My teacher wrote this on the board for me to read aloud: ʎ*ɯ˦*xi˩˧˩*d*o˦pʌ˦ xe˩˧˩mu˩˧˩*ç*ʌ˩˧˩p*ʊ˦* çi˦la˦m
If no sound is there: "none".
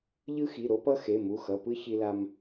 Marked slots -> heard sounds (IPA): ɯ˦, ɾ, x, ɯ˦

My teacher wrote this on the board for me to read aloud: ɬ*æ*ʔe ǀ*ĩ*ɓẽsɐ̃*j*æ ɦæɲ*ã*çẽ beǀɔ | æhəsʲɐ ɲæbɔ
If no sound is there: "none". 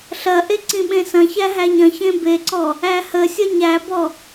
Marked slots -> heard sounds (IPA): ɐ, ĩ, ç, ɐ̃

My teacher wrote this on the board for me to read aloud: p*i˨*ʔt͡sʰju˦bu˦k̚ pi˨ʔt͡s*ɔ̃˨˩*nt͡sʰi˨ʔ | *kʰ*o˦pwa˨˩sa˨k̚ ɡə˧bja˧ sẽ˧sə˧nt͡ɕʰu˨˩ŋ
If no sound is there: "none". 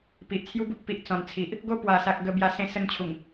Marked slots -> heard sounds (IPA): i˨, ɔ̃˨˩, ɡ

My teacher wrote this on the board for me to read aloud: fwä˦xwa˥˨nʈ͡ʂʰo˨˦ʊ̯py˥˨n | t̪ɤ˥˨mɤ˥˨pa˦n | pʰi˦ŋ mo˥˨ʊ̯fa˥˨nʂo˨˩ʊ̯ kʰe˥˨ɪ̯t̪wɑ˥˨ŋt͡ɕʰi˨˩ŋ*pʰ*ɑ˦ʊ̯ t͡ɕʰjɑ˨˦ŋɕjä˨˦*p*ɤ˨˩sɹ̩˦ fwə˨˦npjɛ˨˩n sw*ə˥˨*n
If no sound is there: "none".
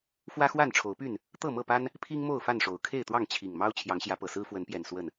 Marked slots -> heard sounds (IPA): m, p, ə˥˨

